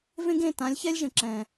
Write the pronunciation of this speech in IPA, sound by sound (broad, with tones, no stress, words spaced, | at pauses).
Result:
vẽ˦ɡ ẽ˦˨tã˨˦lʲçɛ˦lʲʒə̃˨ ǁɛ̃˨